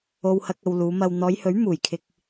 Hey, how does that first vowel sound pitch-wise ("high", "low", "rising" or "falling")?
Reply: low